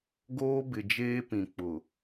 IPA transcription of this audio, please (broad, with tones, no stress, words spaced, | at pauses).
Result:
ɡoː˦bɪ˨d͡ʒeː˦pĩ˨ k͡pʊ˨